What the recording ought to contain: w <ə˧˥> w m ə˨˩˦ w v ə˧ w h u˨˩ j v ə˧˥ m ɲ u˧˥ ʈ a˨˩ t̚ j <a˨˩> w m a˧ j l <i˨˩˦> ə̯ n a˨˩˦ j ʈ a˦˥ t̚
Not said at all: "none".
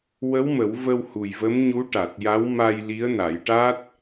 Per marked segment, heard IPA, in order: ə˧˥, a˧˥, i˧˥

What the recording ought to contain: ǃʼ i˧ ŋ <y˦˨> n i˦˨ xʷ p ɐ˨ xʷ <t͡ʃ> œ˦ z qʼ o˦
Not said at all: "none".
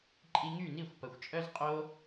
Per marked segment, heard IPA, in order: y˦˨, t͡ʃʼ

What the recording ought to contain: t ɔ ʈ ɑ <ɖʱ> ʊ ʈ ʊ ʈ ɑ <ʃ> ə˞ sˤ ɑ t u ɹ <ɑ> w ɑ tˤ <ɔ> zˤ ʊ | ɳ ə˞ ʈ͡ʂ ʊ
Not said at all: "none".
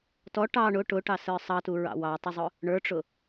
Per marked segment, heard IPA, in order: ɳ, s, ɑ̰, ʊ

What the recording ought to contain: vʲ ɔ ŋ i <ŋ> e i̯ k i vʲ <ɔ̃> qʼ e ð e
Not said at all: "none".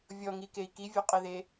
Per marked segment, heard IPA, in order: k, ɔ

